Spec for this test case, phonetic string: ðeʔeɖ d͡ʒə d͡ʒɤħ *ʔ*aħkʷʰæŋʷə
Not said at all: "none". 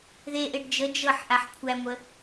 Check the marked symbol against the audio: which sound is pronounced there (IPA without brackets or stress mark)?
ʔ